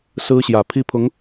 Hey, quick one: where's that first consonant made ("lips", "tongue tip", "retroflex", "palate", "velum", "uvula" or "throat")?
tongue tip